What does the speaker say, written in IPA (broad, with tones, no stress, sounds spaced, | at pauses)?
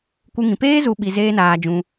kʷ ɨ˦ ŋ ĩ˧ p eː˦ z u˧ ɓ i˧ z eː˦ n aː˧ d͡ʒ ũ˧